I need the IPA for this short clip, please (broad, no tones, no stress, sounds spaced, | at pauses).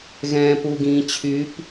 ɣ ɛ̃ː p u ɡ ĩː t͡ɕʰ y p